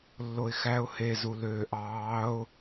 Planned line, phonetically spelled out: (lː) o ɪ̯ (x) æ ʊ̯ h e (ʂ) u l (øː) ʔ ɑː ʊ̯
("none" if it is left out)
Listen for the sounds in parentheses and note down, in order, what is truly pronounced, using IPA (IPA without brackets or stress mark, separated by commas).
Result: lː, x, z, øː